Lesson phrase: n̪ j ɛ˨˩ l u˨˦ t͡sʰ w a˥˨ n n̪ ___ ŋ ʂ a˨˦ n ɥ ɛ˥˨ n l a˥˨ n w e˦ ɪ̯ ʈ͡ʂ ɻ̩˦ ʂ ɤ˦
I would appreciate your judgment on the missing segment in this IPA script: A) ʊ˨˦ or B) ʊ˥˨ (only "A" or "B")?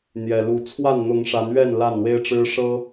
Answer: A